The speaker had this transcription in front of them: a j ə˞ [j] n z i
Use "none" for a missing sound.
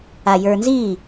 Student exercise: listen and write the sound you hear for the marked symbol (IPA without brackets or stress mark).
none